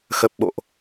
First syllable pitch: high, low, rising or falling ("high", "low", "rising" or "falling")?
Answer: low